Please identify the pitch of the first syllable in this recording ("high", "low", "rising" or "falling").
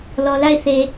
low